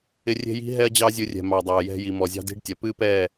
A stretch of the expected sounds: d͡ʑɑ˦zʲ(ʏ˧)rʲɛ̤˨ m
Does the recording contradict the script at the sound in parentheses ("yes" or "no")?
yes